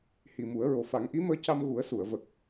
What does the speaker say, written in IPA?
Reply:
hi˨˩mu˨˩˦ə̯ɹo˨˩ fa˨˩˦ŋʔi˧˥məː˧ca˧m ɣu˨˩˦ə̯su˨˩˨ə̯ və˨˩k̚

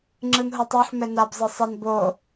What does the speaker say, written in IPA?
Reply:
ŋ͡ǁɯnɦotˤoħ mɛnab zˤɯsˤen bo

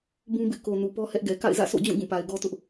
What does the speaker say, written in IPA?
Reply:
bũ˦bɪ˦ʔko˨ nu˨pɔ˦hɛ˦ʔɡɛ˨ ka̰˦˨ɪ̯zä̰˦˨sʰo̰˦˨d͡ʑũ˦˨ ɡũ˦˨pa˨ɪ̯ɡɔ˦tʊ˦ʔ

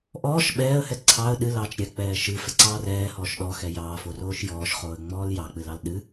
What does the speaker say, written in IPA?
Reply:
ʔɔːʃ ɓɛːə̯hɛ ǀʰɑə̯ ɗɨlɑːt͡ʃ ɾʲɛk͡pɛː ʃɨfɛǀɑː rɛːhɔːʃ ɗɔxɛ jɑːforoːʃ jɔːʃχoːə̯ŋ͡mɔːl jɑk͡pɨlɑl ɗɨ

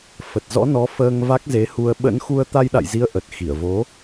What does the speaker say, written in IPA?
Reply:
fə˨˩t̚zɔ̰˧˥ nɔ˨˦ fəː˧ŋ va˦˥k̚ze˨˦hu˧ə̯ ɓə̰˧˥nxu˧ə̯ t̪a˧jɗa̰˧˨jzi˨˦ə̯ ʔə˨˩t̚xi˧˩ə̯vo˨˦

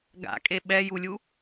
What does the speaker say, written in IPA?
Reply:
ɡa̰kʼe ɓɛjulʲu

